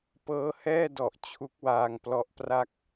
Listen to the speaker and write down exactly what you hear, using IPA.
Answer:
pɤː˦˥hɛː˥˩dɔ˨˩ʔ t͡ɕʰu˦˥k̚waː˧ŋplɔ˦˥ʔpra˥˩k̚

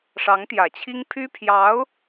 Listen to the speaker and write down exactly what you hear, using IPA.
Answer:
ʂɑ˧˥ŋt̪jä˨˩t͡ɕʰi˥ŋ pʰy˥pʰjɑ˧˥ʊ̯

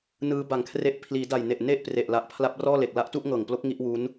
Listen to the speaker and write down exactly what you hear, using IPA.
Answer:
nɯː˦˥ba˨˩ŋkʰre˦˥ʔ pʰliː˩˦da˨˩jne˨˩ʔ ne˥˩ʔpre˨˩ʔla˨˩ʔ pʰla˦˥p̚rɔː˥˩le˨˩k̚ la˦˥ʔtu˥˩ʔŋɤː˨˩ŋplo˦˥k̚ ŋi˥˩ʔwuː˦˥n

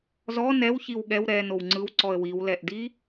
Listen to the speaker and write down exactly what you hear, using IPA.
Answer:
zɔ nɛwçiw ɠɛw ɾɛ nowŋ͡ǀɯw ǀɔə̯wiwlɛʔdi

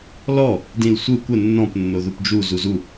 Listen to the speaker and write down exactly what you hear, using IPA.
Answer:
lɔ | dĩlsʷɯ kʷə nːɔ̃p nːoðupd͡ʒu zuzu

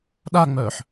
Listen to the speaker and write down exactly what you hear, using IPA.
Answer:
ɗaŋ͡mœːħ

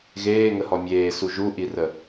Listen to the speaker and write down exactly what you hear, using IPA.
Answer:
ɣeːŋəhɔ mʲeːsu ʒuʔirə

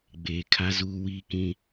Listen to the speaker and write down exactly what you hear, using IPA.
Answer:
ɡ͡beː˨ kʰa˦zuː˦wiː˦kĩ˦

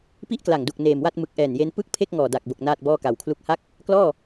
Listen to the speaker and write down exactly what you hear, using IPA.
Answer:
pi˥˩ʔkla˨˩ŋdu˨˩k̚ neː˨˩mwa˥˩t̚ mɯ˨˩k̚ʔɛː˨˩nje˧n pɯ˥˩k̚pʰe˥˩k̚ ŋɔː˨˩da˨˩k̚bo˨˩k̚ naː˥˩t̚bɔː˥˩ka˨˩wkʰlu˥˩k̚ ha˥˩k̚ | klɔː˥˩

